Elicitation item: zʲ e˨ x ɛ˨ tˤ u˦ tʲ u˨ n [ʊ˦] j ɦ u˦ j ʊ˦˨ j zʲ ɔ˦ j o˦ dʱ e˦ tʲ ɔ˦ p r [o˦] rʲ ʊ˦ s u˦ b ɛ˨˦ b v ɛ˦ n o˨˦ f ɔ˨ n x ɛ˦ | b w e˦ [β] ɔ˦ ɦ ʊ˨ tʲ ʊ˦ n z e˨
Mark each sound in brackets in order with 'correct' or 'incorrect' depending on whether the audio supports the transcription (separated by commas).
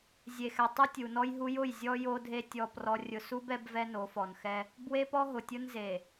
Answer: incorrect, incorrect, incorrect